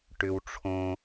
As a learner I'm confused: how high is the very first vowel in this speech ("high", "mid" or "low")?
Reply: high